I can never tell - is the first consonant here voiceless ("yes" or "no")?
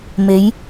no